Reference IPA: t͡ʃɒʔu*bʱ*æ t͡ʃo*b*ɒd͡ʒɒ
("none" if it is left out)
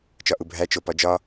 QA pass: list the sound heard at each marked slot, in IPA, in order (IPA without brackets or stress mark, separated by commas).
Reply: bʱ, p